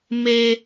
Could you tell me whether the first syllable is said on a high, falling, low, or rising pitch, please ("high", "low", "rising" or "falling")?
high